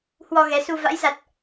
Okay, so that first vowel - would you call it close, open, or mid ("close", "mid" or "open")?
mid